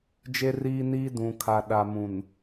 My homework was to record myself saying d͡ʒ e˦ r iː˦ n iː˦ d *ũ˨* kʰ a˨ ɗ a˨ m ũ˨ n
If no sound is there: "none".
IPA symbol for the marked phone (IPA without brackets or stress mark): ũ˨